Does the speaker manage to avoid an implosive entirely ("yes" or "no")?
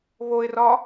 yes